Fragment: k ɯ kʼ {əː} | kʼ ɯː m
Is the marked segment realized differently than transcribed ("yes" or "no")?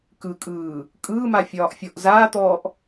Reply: yes